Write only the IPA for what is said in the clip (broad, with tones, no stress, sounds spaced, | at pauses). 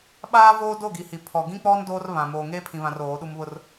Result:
ɓ aː˦ v oː˦ d o˦˨ ɡ i˨ h i˨ pʰ ɔ˨ ɡ ĩ˦ k͡p ɔ˦ n d oː˦ r β ã˨ m oː˨ ŋ eː˦ pʰ ĩ˨ β ã˨ r oː˨˦ ɗ u˦ m β ʊ˦ r